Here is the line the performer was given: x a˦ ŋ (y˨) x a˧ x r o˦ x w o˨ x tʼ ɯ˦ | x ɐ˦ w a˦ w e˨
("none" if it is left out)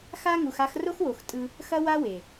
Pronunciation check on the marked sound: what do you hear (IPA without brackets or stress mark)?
u˨